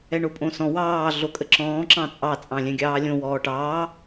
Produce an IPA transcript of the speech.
ɛɳopʼõsɔ̃ wɑː ɮokʼəǁɔ̃ː ǁɑ̃t͡sʼɑ t͡sʼɑ̃lʲɛ̃ɡʲɑːlʲõ wɔːʈɑː

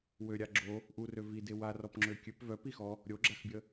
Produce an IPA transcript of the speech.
wøɾʲa ɡ͡ǁo | ʔurø vide warɔpŋ͡ǁø kʲøp vœpixɔ | ɾʲoɡ͡ǁaxbʲə

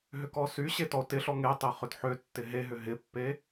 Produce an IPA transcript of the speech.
ɦʏkɔsyɕe tɔo̯tɪɬɔ ŋe tˤeχʏdħøtːɪ ɦeɦʏ ɦɪpːe

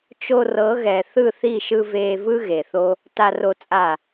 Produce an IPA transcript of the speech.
t͡ʃo˧rɤ˨˦ɣɛ˨ θɯ˦˨θi˦˨ʃɯ˧ veː˧vɯ˦ ɣe˨θo˦ | ta˧ro˧t͡sʼa˦˨

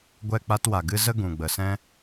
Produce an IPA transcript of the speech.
ɡʷɛ˦˨k͡pa˦twa˨ɡɨ˦ zə˦ ɡũ˨ɡ͡bə˨sɛ̃˦

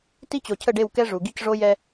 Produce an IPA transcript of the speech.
ti˦t͡ɕo˨ cʰə˦˨ɖe˦˨wkɛ˦ ʐu˨ɡi˦cʐo˦ jɛ˦

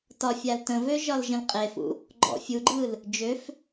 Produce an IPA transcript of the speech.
tɒ fʲaltə̃vø ʒɒlʒə̃lqʼefṵ | ɡ͡ǃɔ̰ fʲuɡ͡ǃɯl | d͡ʒøf

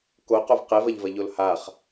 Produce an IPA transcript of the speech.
koqov qevɐʎvɐʎol haχ

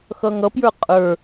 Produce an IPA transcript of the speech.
xʌŋʌpjə˞ qʼə˞

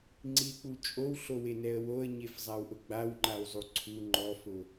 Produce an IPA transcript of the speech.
ŋ͡ǀik͡pu t͡ʃʼowɬowenɛə̯ woə̯ɲefzˤawʔʊ ɡ͡bawŋ͡ǃawzˤu ǀʰu ŋ͡ǃɔfʊ

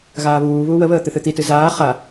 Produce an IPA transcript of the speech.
ɣaːβuːβuː wəβəː t̪ɨθɨt̪itɨ zaː χa

